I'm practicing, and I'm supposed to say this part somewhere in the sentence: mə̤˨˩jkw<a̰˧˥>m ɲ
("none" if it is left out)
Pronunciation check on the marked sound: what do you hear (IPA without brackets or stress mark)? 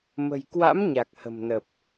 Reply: a̰˧˥